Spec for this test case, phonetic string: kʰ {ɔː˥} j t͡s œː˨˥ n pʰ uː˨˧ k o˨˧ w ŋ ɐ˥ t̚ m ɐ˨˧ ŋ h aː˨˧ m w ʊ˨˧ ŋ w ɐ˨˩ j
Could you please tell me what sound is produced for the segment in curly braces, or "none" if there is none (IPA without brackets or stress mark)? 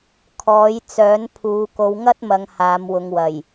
ɔː˨˥